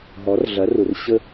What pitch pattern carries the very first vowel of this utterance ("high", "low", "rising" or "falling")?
rising